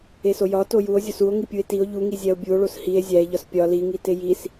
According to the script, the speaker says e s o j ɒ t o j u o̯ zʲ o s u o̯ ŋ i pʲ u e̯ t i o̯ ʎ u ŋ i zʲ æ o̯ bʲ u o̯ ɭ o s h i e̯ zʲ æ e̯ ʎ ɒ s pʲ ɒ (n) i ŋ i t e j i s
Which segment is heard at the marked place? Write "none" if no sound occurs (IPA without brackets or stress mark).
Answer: l